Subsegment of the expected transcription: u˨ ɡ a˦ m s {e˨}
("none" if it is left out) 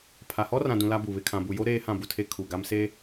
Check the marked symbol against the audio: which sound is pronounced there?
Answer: e˦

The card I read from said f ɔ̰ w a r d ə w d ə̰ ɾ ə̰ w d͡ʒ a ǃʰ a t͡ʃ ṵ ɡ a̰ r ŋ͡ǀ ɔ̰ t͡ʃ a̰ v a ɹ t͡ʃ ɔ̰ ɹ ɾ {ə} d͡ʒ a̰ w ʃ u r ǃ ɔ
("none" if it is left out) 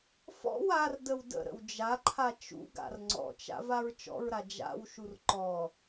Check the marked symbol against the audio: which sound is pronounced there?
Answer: a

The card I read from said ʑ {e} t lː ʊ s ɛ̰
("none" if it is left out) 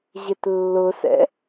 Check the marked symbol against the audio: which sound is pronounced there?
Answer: e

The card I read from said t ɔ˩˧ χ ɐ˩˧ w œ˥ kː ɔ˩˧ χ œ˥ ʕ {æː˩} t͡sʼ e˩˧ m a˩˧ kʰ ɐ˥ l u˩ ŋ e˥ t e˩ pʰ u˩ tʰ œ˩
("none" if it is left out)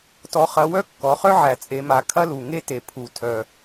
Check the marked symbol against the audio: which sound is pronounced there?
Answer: æ˩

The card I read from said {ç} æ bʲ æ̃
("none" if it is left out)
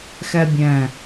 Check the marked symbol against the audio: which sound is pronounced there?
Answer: x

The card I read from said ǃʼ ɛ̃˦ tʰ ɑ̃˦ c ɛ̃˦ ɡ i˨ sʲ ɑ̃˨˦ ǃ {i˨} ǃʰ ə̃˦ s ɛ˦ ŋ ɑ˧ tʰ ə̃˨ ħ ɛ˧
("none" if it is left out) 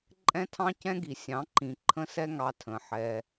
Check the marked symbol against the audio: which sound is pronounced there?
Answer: ĩ˨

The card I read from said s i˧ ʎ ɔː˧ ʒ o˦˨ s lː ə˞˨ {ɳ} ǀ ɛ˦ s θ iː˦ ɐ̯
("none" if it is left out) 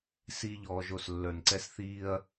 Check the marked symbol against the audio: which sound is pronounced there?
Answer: n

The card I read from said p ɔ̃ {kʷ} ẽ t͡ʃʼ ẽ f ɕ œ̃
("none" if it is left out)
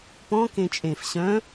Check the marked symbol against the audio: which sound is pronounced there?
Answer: k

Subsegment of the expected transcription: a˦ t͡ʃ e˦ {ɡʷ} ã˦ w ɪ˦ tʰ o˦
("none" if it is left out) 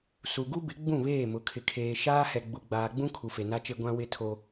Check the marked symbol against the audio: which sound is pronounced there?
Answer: ɡʷ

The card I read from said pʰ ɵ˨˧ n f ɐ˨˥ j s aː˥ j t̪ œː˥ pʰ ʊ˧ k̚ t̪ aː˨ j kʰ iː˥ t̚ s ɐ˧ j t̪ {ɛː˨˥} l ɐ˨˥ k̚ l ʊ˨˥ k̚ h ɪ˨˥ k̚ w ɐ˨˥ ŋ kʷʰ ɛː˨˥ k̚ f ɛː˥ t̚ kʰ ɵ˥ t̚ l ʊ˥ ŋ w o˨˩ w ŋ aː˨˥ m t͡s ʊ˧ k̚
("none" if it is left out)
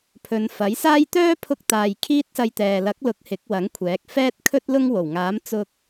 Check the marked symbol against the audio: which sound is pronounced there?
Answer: ɛː˨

